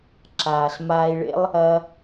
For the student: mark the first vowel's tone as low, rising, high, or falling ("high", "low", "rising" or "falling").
low